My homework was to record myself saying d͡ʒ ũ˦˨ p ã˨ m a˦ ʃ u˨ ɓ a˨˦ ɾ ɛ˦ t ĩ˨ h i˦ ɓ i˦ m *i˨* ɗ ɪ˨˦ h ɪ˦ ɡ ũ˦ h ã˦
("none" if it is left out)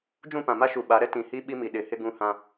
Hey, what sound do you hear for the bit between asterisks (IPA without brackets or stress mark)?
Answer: i˨